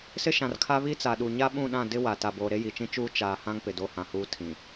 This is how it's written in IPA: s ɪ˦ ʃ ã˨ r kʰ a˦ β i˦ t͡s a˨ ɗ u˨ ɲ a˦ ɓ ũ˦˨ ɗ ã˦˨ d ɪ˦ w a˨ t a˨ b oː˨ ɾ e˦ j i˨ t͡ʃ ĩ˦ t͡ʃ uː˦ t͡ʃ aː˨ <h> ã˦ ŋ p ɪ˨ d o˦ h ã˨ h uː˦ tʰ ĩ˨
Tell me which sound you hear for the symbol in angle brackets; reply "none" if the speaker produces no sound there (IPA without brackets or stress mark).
h